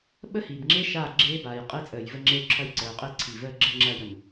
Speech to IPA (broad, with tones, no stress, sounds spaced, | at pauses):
ɓ ə˦ h iː˨ b ŋ͡ǁ e˦ ʃ aː˦˨ ɡ͡ǁ eː˦ b aː˨ j qʼ i˦ t͡sʼ əː˨ j v ə˦ ŋ͡ǁ e˦ u̯ ǁʰ ɐ˦ j ǀ əː˨ u̯ qʼ i˦˨ ǀʰ i˨ v əː˦ ɡ͡ǁ ə˦ ŋ͡ǁ ɐː˦ j ə˨ m